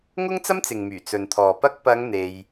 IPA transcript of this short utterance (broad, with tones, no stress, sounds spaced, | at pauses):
ŋ ʊ˥ ŋ t͡s ɐ˥ m t͡s ɪ˨ ŋ m yː˨˩ t͡s ɵ˨ n t̪ʰ ɔː˨ p ɐ˥ k̚ p ɐ˨˧ ŋ n̪ e˧ j